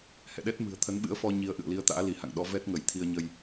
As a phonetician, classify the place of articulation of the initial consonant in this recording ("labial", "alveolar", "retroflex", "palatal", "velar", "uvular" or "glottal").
glottal